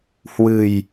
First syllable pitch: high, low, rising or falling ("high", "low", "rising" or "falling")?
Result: low